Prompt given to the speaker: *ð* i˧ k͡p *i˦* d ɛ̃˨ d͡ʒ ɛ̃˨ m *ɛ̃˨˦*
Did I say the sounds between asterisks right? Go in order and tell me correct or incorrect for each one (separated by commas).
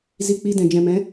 incorrect, incorrect, correct